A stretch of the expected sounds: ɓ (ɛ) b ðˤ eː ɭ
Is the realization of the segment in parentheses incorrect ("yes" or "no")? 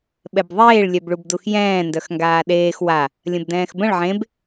no